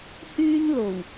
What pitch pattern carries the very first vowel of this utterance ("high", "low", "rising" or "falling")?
high